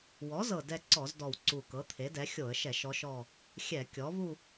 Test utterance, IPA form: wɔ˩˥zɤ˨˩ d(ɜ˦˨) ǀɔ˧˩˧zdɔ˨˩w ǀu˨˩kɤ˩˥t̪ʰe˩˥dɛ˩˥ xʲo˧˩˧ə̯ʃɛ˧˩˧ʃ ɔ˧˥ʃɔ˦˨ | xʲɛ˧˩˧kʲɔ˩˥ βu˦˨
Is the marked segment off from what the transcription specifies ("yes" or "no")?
yes